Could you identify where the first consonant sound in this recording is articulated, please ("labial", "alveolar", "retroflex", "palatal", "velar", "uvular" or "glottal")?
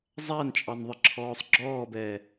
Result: alveolar